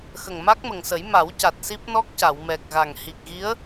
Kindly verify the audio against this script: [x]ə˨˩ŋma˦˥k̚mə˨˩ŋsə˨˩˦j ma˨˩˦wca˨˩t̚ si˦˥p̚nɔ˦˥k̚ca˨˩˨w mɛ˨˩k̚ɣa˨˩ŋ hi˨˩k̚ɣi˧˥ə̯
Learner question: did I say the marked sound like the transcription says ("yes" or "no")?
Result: yes